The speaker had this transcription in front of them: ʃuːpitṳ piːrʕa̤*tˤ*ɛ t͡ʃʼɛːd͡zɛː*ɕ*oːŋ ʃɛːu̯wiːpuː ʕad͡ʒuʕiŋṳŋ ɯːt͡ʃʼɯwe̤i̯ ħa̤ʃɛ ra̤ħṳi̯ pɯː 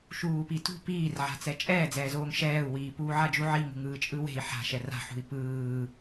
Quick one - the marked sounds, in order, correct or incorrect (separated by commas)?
incorrect, incorrect